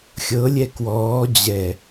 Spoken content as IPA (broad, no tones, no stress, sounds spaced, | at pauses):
xʲ ɤ lʲ ɛ k w ɔː d͡ʑ ɛ